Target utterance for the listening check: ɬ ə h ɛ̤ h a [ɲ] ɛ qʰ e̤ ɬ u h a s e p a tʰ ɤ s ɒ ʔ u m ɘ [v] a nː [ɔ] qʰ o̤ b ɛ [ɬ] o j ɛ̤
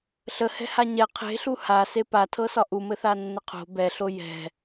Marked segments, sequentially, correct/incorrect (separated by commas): correct, incorrect, incorrect, correct